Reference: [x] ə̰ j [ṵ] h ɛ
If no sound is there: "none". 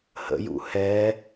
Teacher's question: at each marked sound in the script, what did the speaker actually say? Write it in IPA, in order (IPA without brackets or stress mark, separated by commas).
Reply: h, ṵ